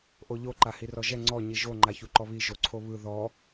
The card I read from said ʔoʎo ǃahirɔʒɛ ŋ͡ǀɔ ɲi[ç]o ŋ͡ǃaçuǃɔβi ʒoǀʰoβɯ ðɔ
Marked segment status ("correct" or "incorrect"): incorrect